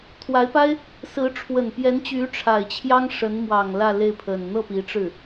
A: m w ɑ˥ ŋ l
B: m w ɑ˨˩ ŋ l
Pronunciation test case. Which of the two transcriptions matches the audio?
B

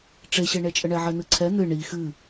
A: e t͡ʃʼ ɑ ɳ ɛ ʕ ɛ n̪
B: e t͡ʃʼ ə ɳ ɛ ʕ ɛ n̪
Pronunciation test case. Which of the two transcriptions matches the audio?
B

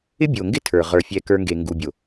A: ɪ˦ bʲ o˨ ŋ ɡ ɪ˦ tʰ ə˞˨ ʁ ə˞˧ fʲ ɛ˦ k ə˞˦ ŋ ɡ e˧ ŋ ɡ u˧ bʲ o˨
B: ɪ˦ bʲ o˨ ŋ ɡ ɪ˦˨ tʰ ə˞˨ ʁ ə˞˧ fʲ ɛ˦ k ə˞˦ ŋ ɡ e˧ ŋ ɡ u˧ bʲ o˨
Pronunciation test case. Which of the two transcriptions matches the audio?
A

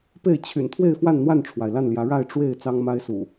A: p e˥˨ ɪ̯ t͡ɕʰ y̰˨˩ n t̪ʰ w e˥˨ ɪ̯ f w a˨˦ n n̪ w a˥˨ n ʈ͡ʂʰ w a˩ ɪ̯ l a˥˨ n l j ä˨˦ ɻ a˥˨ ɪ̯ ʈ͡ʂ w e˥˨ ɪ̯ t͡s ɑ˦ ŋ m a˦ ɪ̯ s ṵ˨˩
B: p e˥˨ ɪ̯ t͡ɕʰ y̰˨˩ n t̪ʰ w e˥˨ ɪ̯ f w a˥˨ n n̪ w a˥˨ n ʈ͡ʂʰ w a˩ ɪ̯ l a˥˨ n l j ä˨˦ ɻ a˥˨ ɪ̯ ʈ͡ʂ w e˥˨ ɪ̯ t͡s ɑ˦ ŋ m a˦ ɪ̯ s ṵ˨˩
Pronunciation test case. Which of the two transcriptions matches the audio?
B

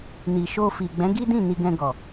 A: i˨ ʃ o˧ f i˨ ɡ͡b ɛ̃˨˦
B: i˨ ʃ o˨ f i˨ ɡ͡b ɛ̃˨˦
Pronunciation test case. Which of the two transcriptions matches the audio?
A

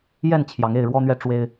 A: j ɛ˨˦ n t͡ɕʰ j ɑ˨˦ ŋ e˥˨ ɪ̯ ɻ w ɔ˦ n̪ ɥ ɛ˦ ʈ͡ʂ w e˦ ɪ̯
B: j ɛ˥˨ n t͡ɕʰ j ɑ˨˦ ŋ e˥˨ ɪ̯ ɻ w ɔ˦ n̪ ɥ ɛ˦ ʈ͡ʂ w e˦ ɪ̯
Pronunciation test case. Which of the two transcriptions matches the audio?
B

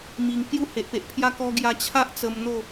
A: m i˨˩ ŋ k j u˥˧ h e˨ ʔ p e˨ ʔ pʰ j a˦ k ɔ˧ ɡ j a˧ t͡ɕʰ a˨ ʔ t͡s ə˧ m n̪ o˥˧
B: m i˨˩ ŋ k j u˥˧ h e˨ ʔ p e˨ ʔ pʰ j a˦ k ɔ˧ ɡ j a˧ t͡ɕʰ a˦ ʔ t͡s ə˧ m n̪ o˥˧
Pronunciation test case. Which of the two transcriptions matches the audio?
B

